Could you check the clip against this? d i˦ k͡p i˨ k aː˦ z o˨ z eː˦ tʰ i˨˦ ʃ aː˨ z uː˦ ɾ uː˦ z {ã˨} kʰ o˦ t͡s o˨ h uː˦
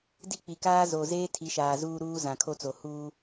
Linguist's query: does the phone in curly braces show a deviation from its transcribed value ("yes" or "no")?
no